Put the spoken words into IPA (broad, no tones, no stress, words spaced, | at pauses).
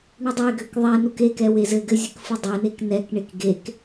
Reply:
ɳudˤeɡøk ðˤɛnuk ekɛ wezɘɡɘ zʲɘkfɯdˤɛnek nɛkɳek ɡek